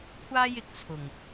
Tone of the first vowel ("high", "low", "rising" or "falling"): high